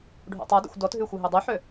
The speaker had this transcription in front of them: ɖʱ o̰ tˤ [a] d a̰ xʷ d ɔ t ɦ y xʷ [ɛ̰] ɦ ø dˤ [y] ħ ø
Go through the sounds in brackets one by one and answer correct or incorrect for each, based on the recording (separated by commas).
correct, incorrect, correct